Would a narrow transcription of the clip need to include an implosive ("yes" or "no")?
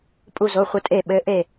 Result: yes